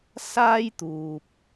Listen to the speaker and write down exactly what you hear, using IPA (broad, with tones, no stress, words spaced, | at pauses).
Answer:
saː˥jt̪uː˨p̚